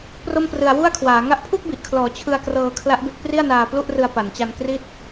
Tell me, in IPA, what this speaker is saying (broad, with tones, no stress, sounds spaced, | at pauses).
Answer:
p r o˥˩ m p r ɯ˧ a̯ w u˥˩ a̯ kʰ w aː˩˦ ŋ a˦˥ ʔ pʰ u˥˩ k̚ b i˨˩ ʔ kʰ l ɔː˩˦ t͡ɕʰ ɯ˧ a̯ k r ɤː˧ kʰ l a˦˥ ʔ b e˦˥ k̚ p r i˥˩ a̯ n aː˧ p l u˥˩ ʔ r ɯ˧ a̯ p a˩˦ n t͡ɕ a˧ n k r i˥˩ t̚